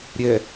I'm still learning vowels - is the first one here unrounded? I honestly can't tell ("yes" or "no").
yes